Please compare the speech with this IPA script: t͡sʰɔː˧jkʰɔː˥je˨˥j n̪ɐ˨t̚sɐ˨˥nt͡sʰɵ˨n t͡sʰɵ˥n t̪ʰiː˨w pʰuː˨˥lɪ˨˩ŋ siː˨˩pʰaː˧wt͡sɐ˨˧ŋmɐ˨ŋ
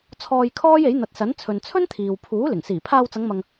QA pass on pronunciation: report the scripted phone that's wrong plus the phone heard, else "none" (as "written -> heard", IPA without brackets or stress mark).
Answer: none